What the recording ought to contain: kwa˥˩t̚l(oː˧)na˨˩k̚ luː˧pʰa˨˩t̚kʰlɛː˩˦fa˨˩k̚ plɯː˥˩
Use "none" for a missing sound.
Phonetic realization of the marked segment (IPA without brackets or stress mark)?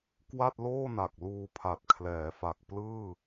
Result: oː˥˩